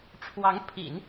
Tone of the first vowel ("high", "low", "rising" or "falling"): rising